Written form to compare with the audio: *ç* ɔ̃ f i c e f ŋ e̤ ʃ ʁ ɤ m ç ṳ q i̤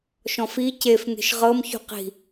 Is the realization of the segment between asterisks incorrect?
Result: yes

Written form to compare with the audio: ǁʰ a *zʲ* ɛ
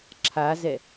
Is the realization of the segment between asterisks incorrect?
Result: yes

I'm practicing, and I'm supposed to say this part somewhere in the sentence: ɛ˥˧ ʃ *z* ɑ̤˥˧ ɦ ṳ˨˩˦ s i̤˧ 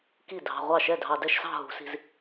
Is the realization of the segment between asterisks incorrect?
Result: yes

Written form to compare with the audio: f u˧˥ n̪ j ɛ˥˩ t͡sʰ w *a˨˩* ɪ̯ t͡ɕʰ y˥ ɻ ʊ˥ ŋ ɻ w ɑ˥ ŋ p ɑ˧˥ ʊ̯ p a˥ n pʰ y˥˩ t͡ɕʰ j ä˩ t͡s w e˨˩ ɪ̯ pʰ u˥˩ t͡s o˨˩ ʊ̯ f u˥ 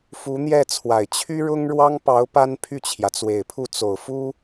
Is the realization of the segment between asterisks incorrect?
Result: no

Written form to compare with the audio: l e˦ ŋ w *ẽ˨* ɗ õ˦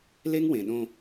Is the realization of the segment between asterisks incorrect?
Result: no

